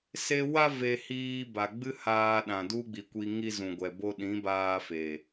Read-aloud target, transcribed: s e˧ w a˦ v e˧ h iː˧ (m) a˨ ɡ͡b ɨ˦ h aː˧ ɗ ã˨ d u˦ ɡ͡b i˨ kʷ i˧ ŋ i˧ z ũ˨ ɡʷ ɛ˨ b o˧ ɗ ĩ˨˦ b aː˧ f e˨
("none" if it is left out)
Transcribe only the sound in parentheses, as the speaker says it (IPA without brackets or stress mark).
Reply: b